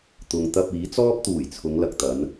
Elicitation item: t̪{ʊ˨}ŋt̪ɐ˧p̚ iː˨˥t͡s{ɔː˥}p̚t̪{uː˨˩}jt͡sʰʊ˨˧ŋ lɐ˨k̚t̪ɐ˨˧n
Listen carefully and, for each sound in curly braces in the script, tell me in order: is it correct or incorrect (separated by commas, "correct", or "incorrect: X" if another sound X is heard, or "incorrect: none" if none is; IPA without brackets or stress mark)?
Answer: correct, correct, correct